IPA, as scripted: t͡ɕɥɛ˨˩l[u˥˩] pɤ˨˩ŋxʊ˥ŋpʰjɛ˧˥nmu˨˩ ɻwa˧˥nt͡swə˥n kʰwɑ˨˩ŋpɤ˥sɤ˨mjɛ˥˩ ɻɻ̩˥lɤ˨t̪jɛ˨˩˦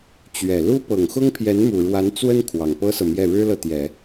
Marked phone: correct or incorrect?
incorrect: u˥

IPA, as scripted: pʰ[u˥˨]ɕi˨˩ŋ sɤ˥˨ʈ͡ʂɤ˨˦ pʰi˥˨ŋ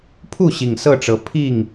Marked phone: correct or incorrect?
correct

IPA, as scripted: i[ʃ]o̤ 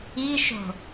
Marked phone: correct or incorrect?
correct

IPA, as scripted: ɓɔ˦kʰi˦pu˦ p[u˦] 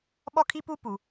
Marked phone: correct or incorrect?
incorrect: u˨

